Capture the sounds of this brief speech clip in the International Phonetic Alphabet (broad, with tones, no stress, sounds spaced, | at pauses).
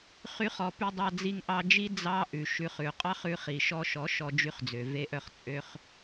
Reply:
χ y˧ χ ɔ˧ p y˧ dˤ ɑ˧ d͡z i˧ ŋ ʔ ɑ˧ d͡ʒ i˦ d͡z ɑ˧ ʔ ʉ˨ ʃ ʉ˧ χ ʉ˨ qʼ ɑ˦ χ ʉ˧ χ i˨ ʃ ɔ˧ ʃ ɔ˨˦ ʃ ɔ˧ d͡ʒ y˧ χ d͡z ø˨ v e˦ ʔ œ˦˨ χ t͡sʼ ø˧ χ